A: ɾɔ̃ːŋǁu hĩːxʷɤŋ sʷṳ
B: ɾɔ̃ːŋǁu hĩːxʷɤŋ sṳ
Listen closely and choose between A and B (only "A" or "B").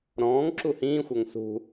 B